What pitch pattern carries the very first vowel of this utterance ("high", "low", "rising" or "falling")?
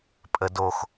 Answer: high